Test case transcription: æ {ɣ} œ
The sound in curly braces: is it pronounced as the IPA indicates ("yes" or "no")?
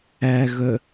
yes